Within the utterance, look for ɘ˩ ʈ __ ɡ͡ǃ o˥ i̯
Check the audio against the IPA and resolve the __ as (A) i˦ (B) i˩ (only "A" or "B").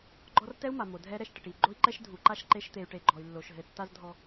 B